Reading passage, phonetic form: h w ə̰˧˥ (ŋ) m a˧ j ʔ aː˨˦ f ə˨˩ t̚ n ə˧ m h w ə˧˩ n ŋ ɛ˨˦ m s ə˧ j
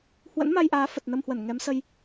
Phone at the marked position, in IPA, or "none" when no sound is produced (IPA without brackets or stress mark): n